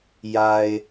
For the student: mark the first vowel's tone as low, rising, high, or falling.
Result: low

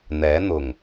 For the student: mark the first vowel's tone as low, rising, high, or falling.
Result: rising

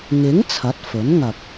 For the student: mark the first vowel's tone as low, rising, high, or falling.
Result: rising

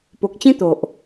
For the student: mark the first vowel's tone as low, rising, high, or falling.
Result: low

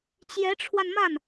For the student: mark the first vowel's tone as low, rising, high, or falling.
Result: rising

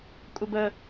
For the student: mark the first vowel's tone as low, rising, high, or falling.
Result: high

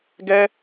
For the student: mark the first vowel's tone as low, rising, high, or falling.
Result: high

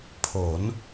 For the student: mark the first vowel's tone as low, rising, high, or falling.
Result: rising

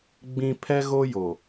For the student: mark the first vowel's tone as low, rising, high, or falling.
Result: low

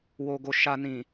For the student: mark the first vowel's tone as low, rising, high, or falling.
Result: low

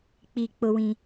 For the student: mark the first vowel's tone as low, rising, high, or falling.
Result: falling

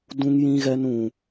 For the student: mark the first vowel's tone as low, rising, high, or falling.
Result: high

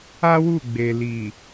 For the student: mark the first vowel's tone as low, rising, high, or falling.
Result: high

